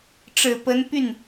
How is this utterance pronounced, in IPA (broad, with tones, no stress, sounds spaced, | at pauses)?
ʈ͡ʂ ɻ̩˨˩ p ə˧˥ n p y˥˩ n